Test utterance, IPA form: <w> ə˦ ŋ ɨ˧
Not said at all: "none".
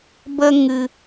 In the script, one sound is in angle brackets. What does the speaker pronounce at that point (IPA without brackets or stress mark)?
b